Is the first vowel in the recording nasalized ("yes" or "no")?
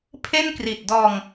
no